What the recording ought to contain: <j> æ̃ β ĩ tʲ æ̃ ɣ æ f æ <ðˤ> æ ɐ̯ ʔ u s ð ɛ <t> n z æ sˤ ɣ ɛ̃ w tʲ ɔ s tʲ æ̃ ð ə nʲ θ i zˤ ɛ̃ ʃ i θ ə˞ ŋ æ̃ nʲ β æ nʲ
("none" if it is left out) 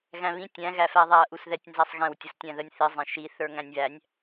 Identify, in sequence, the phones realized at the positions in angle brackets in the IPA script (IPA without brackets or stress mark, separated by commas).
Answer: ɣ, ðˤ, tʲ